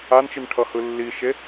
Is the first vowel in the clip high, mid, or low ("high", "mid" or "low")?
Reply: low